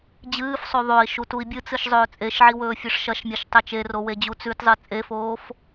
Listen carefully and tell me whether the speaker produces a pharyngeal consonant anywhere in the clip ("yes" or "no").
yes